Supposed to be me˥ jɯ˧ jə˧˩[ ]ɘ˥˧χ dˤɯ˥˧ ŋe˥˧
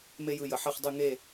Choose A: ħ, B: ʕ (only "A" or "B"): A